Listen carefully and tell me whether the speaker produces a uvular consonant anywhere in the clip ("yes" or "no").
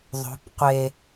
yes